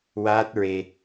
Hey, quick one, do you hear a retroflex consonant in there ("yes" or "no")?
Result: no